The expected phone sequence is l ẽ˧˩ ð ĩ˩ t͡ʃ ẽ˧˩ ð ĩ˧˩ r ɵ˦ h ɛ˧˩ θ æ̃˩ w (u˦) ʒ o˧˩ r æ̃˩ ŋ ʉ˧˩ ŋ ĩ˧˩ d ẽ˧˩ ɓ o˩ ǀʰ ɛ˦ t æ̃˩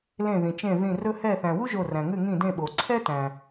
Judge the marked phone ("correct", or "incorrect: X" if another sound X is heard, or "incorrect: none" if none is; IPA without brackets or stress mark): correct